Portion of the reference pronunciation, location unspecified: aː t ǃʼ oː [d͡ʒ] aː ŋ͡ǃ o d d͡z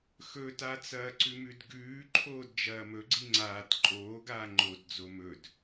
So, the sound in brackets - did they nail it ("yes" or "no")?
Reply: no